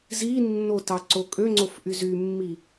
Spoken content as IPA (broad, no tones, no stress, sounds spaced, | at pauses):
z i nː o t ɑ ǀ o kʼ ø ŋ͡ǀ o f ʔ y z y mː i